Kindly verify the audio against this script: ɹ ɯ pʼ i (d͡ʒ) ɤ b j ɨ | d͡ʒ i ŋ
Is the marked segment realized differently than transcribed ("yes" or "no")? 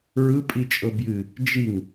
yes